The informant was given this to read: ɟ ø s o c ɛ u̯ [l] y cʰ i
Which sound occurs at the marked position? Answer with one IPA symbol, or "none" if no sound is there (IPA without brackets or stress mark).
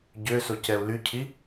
l